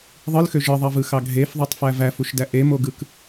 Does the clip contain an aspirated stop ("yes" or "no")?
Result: no